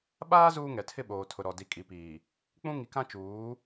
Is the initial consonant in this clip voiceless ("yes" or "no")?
no